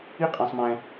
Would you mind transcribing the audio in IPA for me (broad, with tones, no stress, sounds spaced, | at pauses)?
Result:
i˥˧ qʼ ã˨ sˤ m ɛ̃˨